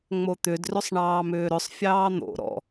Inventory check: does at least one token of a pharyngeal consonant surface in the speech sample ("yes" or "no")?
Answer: no